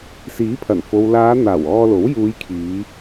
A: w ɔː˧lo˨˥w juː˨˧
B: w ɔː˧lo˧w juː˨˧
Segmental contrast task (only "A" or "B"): A